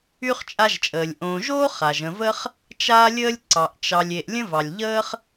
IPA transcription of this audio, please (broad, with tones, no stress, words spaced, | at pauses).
y˥χt͡ʃʼa˦ʒt͡ʃʼəː˩lʲ ʔõː˨ʒoː˥ χa˩ʒə̃˨və˥χ | t͡ʃaː˥lʲəː˥lʲ ǀɑ˩ʔt͡ʃɑ˨lʲ e˨ʔlʲə̃˥vɑ˩lʲʎəː˥χ